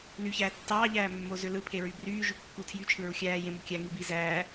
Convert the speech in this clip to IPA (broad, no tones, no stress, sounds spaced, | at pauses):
l y ç æː tː ɑː ʎ æː mː o z ø l ɯ pʰ e ɹ y b r yː ʒ y kː u tʰ j y t͡ʃʰ ɯ ɹ u xʲ æː j ẽ m u kʲ æ ŋ i b i z æː